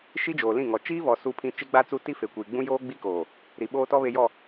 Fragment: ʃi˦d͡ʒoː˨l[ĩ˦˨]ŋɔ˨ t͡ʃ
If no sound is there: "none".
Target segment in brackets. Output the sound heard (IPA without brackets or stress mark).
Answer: ĩ˦˨